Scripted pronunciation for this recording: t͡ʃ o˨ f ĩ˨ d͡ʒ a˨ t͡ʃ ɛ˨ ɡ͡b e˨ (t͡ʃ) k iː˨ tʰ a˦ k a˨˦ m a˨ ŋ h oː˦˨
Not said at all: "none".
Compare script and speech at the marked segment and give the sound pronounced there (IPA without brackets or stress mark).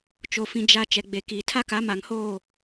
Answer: none